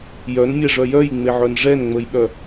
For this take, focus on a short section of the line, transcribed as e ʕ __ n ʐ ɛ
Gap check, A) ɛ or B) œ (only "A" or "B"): B